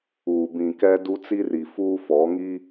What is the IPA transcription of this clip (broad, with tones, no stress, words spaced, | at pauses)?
uː˨ bĩ˨ kɛ˦du˦ t͡si˦ri˨fuː˦ fɔ˨˦ ŋi˦